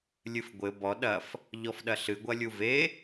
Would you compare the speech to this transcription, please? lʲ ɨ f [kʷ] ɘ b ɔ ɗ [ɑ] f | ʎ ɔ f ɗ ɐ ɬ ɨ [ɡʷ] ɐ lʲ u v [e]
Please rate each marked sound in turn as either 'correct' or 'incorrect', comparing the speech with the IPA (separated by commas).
incorrect, incorrect, correct, correct